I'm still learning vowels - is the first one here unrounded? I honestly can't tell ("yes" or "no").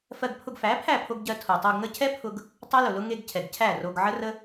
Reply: yes